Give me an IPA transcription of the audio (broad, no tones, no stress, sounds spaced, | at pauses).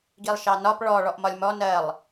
ɡ i lˠ ʃ ɑ n ɒ p ɭ ɔ ɭ ɔ ʔ m ɒ lʲ m ɔ n ɜ lˠ